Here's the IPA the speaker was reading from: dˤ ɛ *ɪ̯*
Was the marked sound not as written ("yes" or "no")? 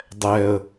yes